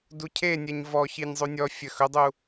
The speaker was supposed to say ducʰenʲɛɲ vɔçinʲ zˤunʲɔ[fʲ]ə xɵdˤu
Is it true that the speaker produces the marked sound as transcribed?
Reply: yes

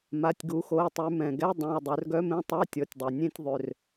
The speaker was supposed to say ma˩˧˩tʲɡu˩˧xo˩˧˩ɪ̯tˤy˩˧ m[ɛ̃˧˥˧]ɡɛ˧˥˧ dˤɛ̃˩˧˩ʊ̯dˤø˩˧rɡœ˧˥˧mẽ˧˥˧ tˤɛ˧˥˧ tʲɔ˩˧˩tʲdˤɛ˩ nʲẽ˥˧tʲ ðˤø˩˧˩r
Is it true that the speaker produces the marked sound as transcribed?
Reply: no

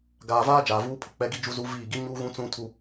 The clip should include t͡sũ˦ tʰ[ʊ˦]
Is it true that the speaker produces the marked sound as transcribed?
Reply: no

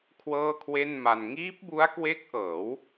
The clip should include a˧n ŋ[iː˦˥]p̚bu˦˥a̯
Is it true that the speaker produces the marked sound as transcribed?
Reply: yes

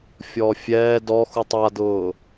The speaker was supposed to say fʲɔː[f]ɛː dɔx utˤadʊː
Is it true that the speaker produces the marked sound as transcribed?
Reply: no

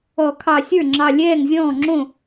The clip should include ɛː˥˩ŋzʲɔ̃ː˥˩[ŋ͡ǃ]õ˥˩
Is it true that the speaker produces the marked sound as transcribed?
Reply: no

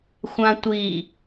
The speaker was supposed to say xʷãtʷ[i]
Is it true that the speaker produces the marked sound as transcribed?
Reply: yes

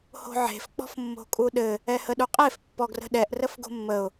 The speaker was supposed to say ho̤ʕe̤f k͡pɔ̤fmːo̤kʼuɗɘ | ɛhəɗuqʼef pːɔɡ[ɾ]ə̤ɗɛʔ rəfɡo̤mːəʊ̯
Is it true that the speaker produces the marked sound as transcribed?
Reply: no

